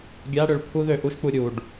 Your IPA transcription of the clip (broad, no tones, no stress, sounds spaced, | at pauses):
ɡʲ a ɽ ø ɭ pʰ u ð ø ʔ u ʃ k͡p u ɾʲ u ɖ